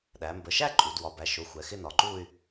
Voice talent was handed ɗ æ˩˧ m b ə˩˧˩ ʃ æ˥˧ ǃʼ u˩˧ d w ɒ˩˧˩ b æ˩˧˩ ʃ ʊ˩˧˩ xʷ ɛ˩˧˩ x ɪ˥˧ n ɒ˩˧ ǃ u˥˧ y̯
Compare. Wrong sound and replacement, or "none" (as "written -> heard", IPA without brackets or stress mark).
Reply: none